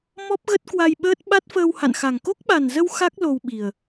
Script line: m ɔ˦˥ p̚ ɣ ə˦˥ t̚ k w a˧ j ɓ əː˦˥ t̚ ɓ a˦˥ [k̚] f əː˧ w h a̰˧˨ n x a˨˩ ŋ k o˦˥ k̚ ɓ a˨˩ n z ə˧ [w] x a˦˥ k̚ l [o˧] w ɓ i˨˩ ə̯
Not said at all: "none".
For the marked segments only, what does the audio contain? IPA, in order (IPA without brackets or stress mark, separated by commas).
t̚, w, o˧